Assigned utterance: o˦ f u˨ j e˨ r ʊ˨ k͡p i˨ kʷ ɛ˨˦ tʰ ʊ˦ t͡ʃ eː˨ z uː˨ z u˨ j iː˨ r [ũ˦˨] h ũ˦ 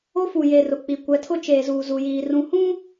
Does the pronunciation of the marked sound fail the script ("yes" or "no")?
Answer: yes